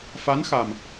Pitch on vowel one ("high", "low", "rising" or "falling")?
rising